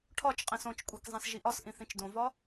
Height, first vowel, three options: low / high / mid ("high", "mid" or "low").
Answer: low